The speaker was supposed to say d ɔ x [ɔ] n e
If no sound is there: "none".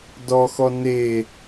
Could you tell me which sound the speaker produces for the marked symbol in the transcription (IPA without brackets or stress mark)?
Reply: ɔ